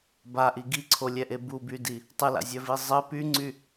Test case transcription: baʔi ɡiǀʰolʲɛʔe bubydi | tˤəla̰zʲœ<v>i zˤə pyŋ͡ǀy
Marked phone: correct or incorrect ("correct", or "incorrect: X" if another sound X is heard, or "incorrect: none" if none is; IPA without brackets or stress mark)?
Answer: correct